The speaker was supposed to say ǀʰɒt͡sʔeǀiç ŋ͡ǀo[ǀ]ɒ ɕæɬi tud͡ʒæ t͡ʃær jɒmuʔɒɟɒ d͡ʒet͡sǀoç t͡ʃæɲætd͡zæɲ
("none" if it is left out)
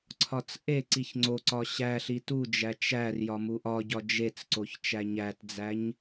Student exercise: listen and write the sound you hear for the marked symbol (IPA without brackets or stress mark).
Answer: ǀ